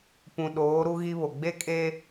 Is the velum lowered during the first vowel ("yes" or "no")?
yes